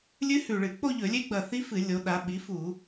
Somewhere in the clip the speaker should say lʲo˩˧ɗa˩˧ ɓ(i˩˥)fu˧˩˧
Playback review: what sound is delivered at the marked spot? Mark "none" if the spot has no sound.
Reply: i˩˥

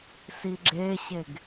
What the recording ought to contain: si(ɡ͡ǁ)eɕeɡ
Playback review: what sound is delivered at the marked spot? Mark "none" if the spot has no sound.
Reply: ɡ͡ǁ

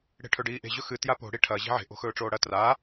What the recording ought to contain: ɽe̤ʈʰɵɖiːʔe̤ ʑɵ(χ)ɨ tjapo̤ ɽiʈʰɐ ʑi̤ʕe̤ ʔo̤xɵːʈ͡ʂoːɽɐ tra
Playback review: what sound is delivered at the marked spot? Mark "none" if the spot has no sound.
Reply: x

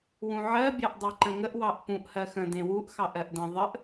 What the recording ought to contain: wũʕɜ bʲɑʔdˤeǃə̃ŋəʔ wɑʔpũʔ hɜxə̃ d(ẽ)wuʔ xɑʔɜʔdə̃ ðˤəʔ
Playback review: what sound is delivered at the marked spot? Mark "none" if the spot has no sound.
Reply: ẽ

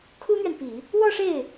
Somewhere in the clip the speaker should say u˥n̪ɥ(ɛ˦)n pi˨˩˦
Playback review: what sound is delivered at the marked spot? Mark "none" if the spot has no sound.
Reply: ɛ˨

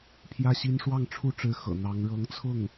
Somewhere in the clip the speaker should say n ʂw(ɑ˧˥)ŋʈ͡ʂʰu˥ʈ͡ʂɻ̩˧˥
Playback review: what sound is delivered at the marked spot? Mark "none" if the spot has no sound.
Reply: ɑ˥˩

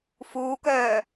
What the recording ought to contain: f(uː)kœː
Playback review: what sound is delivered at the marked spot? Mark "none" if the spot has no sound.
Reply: uː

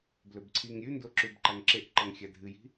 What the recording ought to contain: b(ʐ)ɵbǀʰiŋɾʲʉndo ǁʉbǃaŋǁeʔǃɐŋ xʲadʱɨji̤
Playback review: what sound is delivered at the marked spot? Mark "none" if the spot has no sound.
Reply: l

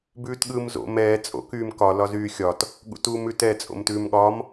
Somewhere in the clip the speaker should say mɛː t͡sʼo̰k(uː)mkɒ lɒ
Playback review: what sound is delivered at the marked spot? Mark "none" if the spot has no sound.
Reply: yː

